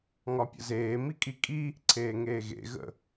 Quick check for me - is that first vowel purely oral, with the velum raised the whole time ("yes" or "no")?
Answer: yes